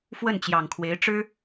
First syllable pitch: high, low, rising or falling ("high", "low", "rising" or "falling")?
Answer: falling